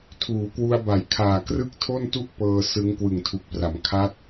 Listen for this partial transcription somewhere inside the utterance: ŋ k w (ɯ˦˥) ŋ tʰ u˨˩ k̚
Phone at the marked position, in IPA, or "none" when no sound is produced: ɯ˨˩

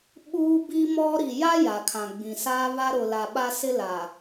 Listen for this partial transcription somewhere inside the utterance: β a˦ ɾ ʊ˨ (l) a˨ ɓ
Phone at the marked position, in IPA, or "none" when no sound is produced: l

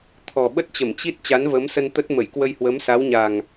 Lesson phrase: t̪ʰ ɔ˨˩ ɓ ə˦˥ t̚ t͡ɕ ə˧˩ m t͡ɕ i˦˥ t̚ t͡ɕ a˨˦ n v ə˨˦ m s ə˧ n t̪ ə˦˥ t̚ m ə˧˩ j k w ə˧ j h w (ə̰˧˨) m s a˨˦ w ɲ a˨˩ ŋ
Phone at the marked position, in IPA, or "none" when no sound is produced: ə˨˦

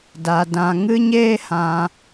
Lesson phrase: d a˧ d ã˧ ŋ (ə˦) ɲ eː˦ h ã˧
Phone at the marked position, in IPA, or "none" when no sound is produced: ɨ˦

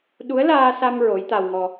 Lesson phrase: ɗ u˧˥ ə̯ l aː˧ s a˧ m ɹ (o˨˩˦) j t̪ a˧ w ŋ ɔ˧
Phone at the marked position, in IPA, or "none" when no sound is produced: o˧˥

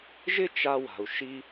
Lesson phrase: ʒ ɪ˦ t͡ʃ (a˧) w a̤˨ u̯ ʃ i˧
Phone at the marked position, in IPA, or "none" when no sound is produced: a˧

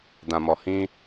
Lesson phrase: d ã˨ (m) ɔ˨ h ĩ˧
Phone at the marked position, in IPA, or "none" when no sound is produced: m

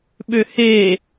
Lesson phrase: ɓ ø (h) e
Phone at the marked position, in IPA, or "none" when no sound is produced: h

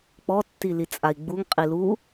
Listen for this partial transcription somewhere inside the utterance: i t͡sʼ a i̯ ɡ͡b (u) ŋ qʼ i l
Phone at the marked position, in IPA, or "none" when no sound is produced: u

